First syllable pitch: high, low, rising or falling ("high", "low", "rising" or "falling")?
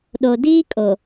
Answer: low